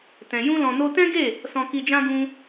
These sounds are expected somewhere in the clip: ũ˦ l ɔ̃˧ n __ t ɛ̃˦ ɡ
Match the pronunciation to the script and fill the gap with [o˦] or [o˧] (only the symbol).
o˦